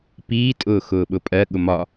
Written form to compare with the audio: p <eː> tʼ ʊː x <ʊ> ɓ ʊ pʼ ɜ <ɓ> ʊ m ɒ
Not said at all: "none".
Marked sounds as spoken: iː, ʊː, ɠ

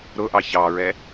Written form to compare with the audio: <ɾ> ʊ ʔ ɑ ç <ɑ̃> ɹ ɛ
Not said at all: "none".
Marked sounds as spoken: ɾ, ɑ

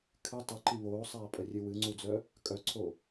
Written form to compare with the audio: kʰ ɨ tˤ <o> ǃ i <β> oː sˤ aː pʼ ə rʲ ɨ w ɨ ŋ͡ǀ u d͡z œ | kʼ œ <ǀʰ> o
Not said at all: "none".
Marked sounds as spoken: u, β, ǀʰ

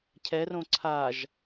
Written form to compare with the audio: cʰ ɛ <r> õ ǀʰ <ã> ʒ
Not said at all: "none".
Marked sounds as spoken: r, a

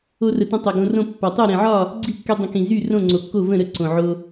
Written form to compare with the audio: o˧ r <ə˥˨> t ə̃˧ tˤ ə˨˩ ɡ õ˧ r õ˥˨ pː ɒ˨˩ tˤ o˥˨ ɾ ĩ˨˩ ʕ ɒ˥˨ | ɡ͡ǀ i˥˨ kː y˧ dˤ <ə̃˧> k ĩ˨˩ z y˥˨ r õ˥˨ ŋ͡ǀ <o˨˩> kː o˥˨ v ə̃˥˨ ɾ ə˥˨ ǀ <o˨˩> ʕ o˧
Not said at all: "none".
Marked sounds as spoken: ə˨˩, ə̃˧, o˨˩, õ˨˩

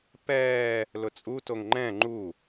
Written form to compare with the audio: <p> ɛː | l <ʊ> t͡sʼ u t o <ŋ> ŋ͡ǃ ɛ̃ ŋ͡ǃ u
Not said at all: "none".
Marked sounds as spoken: p, ʊ, ŋ

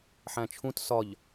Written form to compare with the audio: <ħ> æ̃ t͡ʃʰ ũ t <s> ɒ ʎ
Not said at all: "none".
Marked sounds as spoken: ħ, s

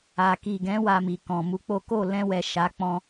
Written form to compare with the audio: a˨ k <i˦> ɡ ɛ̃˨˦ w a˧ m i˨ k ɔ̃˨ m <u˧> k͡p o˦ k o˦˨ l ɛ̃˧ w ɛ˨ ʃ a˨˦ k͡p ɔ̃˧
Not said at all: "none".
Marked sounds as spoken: i˨, u˧

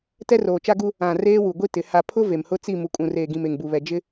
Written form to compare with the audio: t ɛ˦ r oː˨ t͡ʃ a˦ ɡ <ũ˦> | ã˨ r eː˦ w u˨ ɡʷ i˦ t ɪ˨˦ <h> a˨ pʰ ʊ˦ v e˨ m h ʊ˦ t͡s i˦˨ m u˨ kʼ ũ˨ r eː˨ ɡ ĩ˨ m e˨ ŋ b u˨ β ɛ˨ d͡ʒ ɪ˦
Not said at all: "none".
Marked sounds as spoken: u˦, h

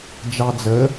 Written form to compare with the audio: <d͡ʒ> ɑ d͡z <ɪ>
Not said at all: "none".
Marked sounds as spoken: d͡ʒ, ə

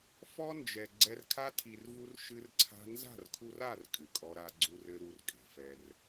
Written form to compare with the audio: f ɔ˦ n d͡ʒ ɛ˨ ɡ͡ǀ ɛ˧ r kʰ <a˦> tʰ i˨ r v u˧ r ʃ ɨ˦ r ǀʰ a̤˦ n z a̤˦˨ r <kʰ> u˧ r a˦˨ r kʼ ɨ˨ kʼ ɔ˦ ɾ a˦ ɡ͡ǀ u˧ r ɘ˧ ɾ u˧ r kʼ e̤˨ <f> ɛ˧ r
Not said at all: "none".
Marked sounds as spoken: a˦, kʰ, f

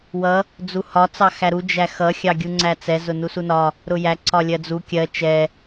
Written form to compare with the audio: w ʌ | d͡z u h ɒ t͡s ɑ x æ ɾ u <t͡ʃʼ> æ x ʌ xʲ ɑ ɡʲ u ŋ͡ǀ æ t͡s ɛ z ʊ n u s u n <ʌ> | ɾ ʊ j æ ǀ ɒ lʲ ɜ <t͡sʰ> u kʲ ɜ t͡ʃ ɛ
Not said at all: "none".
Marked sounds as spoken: d͡ʒ, ɒ, d͡z

